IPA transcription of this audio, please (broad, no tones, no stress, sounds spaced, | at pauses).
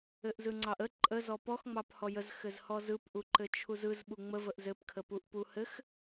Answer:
ɘ ʔ z ɯ ŋ͡ǀ ɑ ʔ ə ǃʼ ə z ɔ p ɔ x ŋ͡m ɑ p h ɔ j ə z x ɘ z h ɔ z ɯ p ʔ u ǃ ɘ t͡ʃʰ u z ɯ z ɓ u ŋ͡m ə v ə ʔ z ɘ p kʰ ə p u ʔ p u h ɘ x